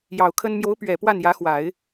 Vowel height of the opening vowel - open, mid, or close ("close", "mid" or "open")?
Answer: open